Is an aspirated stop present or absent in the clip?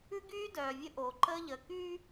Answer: absent